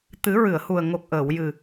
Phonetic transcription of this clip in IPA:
t̪ɨ˨˩˦ɹɨ˨˩˨ə̯hu˨˩ə̯ ŋo˨˩k̚ʔəː˨˩˨wjɨ˨˩

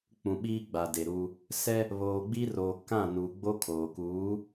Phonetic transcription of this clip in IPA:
k͡pũ˨ɓiː˦ ɡ͡ba˨de˨ɾu˦ | sɛ˦ | βoː˨ɡ͡bi˦ roː˨kã˦˨ nu˨ɡ͡bo˦ kʰoː˨kuː˨˦

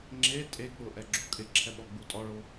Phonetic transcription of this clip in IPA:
ŋ͡ǁe tʼek͡pʊ ʔɛɡ͡ǁukʼɪǁʰɛ ɓɔɡ͡butʼɔɭo

